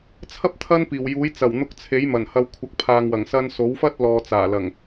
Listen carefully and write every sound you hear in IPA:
t͡sʰɐ˥p̚ t̪ʰɐ˥npiː˨˩wjuː˨˥j t͡sɐ˨˩wn̪ʊ˧k̚t͡sʰe˨˥j mɐ˨˩nhɐ˧w kʷʰɐ˨k̚pʰaː˨ŋwɐ˨˩ŋ sɐ˧nso˨˥wfɐ˥t̚ lɔː˨t͡saː˨˩lɐ˨˩ŋ

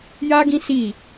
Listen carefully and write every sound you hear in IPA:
jaː˦ ɡĩ˦ si˦˨

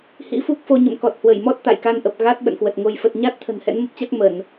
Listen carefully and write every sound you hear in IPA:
hḭ˧˥fu˦˥k̚fo˧ ɲə̰˧˨mkɔ˨˩t̚hwə˧˩jmɔ˦˥t̚ t̪a̰˧˨jka˧nʔə˨˩p̚ ɣa˦˥t̚ ɓə̰˧˨nkwə˨˩t̚ŋo˧j fə˨˩t̚ɲa˦˥t̚t̪ʰə̤˨˩n hɛ̰˧˥nmə˦˥p̚t͡ɕa˦˥k̚ mə˧˩˨n

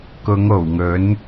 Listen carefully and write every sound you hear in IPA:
kʊ˨˧ŋo˨˩wŋɵ˨˥n

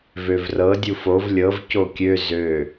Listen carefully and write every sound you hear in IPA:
vøvrɤ dʲufov lʲɤv cokʲø zø

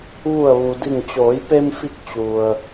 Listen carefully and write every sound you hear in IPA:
ʋu˧˩ə̯ʋu˩di˧˩ŋ t͡ɕoː˩˧jpe˧mfi˧k̚ t͡ɕu˩ə̯

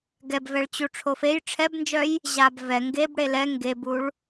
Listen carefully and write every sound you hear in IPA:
ɡɛbvɛɭt͡ɕu ʈ͡ʂʰofej ʈ͡ʂʰɛbnd͡ʒœj | ʑabvɛ ŋɡeb ɽelɛ ŋɡebuɭ

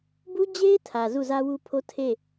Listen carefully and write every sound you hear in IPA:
bu˦d͡ʑe˦ɪ̯ tʰä˨ zu˦˨zä˦wu˦pʰo˦ tʰe˦˨

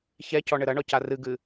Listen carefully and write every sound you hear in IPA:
çɛcɔ ɳɘɾɐɳɔ carɨɡɨ

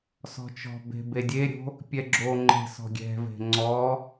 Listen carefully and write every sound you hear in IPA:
sɔ̤t͡ʃɔ̤be̤ bedʲeɾʲo̤ | pʲɛɡ͡ǁoŋ͡ǃe̤ sɔ̤ɡʲɛ̤ve̤ ŋ͡ǀɔ

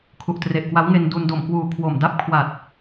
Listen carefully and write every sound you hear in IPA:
kʰu˨˩ʔtre˨˩ʔkwa˦˥wŋe˧n du˧n do˨˩mkwuː˨˩kʰwo˨˩m da˦˥p̚kʰwa˨˩t̚

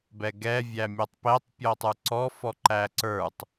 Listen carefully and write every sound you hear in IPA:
bɛɡɛ vʲæmʲɔtˤpɛtˤ pʲɔtˤə˞ǀɔ fɔǃæǀə˞tˤ

